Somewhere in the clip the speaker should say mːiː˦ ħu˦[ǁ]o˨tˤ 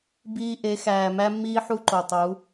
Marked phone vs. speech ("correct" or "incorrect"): incorrect